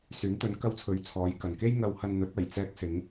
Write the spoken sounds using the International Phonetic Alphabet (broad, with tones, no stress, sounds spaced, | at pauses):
s yː˨˥ n t̪ ɵ˨˥ n k ɐ˧ w t͡sʰ ɵ˨ ɥ t͡sʰ ɔː˨˧ j k ɐ˨ n k e˥ j ŋ ɐ˧ w h ɐ˧ n n̪ ɵ˨˥ t̚ ɐ˨˩ j t͡s ɛː˧ k̚ s ɪ˨˧ ŋ